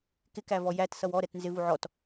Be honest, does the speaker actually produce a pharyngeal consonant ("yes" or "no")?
yes